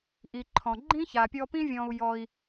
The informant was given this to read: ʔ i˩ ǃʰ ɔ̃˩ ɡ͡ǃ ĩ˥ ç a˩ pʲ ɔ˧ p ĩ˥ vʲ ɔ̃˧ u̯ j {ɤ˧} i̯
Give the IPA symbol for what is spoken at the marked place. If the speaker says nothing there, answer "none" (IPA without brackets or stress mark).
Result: ɔ˧